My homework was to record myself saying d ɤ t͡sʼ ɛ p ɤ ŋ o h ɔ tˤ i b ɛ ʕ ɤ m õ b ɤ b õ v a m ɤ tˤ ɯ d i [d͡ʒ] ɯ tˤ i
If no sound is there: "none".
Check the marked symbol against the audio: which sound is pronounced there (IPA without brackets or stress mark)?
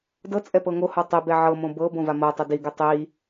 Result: ɡ